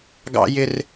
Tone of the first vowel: high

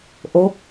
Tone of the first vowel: rising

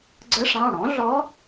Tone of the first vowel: rising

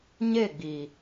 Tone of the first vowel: falling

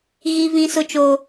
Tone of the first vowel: high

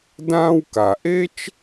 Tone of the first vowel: high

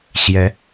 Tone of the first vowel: rising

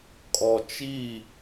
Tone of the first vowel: low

